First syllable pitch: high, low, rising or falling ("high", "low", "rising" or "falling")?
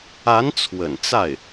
rising